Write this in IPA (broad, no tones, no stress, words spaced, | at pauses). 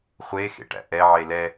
χʷexḛʈæ̰ ʔɛʕe lɛ